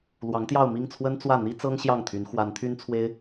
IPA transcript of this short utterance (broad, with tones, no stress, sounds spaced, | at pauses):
l w ɑ˧˥ ŋ t̪ j ɑ˥˧ ʊ̯ m i˥˩ ŋ t͡sʰ w ə˥ n t͡s w ä˥˩ n̪ i˥ t͡s ɤ˥ ŋ ɕ j ɑ˥˩ ŋ t̪ʰ y˧˥ n x w a˧˥ n t̪ʰ y˥ n t͡sʰ w e˥ ɪ̯